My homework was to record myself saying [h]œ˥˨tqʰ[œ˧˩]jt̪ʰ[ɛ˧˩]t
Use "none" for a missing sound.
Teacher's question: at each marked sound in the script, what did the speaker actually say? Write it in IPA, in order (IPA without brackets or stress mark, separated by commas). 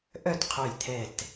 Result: ʔ, œ˧˩, ɛ˧˩